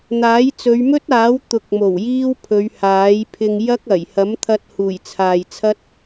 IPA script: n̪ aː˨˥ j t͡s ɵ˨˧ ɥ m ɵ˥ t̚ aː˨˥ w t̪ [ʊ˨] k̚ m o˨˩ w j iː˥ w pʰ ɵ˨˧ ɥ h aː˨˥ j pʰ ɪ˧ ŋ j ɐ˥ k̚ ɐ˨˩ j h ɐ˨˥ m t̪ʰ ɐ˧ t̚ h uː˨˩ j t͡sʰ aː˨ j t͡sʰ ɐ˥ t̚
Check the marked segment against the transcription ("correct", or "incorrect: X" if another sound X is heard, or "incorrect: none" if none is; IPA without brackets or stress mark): correct